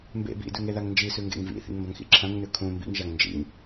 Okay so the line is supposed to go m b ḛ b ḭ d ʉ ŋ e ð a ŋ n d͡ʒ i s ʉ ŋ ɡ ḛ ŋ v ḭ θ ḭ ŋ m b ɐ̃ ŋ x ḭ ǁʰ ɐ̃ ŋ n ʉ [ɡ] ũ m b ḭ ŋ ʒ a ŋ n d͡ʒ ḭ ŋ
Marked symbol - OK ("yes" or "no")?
no